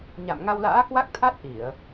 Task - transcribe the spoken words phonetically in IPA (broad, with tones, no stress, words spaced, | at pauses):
ɲa̰˧˨mŋa˧wla̰ː˧˥ kwa˦˥k̚t̪ʰa˦˥t̚ ʔi˧˩˨ə̯